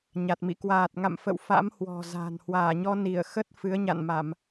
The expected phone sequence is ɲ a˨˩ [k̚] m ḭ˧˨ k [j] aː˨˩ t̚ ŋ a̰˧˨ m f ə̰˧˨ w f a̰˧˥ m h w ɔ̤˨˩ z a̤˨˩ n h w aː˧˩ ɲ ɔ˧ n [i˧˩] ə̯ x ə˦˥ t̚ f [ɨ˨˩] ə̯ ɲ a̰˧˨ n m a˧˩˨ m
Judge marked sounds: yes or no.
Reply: no, no, yes, no

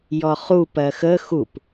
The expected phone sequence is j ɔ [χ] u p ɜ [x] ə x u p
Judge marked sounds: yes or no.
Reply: yes, yes

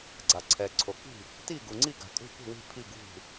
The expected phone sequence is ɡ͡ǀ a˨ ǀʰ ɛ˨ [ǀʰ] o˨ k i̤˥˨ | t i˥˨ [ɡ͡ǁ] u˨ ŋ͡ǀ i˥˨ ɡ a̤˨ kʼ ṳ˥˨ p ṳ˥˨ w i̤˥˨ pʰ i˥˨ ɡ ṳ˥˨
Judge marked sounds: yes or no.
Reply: yes, no

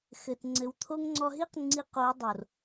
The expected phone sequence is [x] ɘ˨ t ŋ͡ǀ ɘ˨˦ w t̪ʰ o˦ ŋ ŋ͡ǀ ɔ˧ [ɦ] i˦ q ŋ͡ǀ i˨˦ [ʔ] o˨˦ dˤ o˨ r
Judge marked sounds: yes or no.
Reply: yes, yes, no

